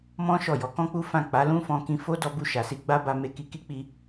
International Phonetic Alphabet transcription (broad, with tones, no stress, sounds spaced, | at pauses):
m ɔ̃˦ ʃ ɔ˦˨ j ɔ˨˦ k ɔ̃˦ k͡p u˦ f ã˦˨ k͡p a˨˦ l ũ˦ f ɔ̃˧ k ĩ˧ f o˦ d ɔ˧ b u˧ ʃ a˨ s i˧ ɡ͡b a˦ b a˧ m e˧ k i˧ k i˦ k͡p i˧